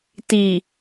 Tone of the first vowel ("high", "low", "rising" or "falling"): low